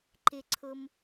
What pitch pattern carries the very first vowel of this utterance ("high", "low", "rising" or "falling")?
low